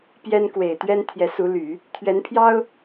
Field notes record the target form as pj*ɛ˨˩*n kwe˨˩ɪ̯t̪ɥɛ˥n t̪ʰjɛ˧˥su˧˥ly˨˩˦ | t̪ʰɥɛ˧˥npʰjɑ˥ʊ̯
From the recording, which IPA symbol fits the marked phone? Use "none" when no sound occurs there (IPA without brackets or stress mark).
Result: ɛ˥